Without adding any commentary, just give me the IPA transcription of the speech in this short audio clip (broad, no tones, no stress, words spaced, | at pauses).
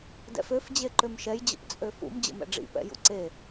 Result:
dɛ̰føf d͡ʑeǃømʃɛj d͡ʑə̰pt͡sʼøfṵm d͡ʑə̰mɛ̰ɖ͡ʐḭ pɛ̰jṵǀe